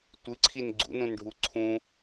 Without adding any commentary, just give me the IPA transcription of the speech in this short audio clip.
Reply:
tʷɨǀʰin ɡ͡ǀṵnũnɖʱu ǀʰũ

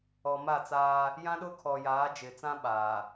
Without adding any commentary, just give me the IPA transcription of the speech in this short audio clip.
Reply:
ɔ˨ma˦˨t͡saː˦ | jã˦ɗʊ˦kʰɔ˨jaː˨˦ d͡ʒɪ˨t͡sã˦ ɓaː˨

